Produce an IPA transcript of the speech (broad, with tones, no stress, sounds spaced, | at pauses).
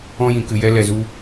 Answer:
ɔ̃˧ j ĩ˨ k ɨ˨ j ɛ˧ l ɛ˨ z u˧